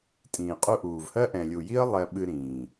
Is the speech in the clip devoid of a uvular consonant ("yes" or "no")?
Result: no